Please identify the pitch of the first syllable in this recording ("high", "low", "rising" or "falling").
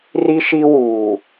high